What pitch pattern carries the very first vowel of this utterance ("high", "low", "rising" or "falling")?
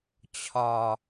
low